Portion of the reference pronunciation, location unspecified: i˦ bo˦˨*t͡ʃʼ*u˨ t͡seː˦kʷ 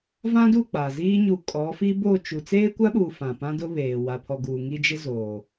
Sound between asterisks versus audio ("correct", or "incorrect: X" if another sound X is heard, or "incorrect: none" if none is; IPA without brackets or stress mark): incorrect: t͡ʃ